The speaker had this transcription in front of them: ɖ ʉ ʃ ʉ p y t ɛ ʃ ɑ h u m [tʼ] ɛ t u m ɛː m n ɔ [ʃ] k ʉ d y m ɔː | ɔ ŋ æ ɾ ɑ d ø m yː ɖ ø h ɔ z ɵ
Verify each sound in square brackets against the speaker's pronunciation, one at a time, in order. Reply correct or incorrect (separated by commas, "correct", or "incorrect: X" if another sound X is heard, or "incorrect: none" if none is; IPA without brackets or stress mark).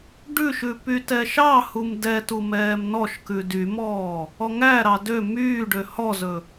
incorrect: d, correct